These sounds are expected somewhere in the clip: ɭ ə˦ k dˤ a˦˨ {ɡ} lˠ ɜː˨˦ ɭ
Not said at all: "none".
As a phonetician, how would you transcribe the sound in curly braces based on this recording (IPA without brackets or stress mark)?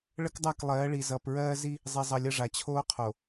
k